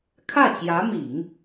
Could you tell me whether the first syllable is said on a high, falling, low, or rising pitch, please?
falling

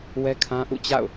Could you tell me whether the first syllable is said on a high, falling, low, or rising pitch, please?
high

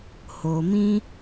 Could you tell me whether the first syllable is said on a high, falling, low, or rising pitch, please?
low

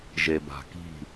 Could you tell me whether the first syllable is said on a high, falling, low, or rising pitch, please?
low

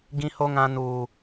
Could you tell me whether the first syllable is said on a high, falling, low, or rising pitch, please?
high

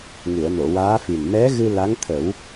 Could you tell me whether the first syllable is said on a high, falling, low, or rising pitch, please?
low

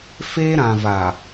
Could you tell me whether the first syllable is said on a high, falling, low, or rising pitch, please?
high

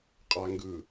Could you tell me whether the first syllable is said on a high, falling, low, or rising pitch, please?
low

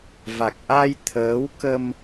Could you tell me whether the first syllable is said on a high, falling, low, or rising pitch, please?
low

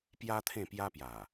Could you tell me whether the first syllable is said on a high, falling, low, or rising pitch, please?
high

